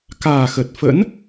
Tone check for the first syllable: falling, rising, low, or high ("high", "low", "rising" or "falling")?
low